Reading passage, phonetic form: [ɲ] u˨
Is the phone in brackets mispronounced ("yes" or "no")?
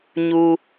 no